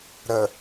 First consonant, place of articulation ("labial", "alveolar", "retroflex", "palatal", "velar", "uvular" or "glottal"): alveolar